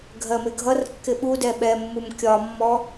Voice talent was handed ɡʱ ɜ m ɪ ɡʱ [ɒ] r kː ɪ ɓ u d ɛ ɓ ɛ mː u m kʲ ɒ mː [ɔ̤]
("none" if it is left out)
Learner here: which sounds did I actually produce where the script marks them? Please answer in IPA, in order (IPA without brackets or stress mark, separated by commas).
ʌ, ɔ